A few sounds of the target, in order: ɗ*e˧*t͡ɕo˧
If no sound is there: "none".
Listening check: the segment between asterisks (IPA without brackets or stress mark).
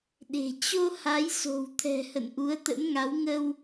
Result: e̤˨˩